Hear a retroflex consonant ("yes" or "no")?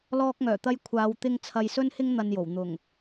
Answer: no